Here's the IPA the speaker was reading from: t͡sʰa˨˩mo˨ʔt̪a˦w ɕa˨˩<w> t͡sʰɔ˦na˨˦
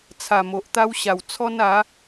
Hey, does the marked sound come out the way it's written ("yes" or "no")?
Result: yes